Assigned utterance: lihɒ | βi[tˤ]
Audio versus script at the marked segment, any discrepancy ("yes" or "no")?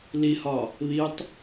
no